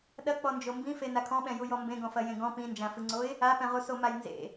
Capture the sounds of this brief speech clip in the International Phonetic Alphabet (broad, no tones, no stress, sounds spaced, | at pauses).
ɗ ɐ k͡p ɔ n d͡ʒ o m b ĩ f e n a kʰ ɔ̃ ɓ ɛ̃ j u j ɔ m b ẽ ɡ ɔ̃ f ɐ j ẽ ɡ ɔ̃ p ĩ n d͡ʒ ã f ɨ ŋ͡ǀ o ɪ̯ | a p ɛ̃ ʁ u s o m a j n z ḛ